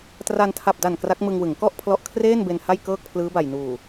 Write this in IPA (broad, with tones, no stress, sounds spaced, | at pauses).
t r a˧ n tʰ a˨˩ p̚ d a˨˩ n k r a˦˥ k̚ m ɯ˧ ŋ w ɯ˩˦ ŋ k ɔ˥˩ ʔ pʰ l ɔ˦˥ ʔ kʰ r eː˥˩ n b e˧ n h a˥˩ j k ɤː˥˩ k̚ pʰ l ɯː˦˥ b a˨˩ j n uː˨˩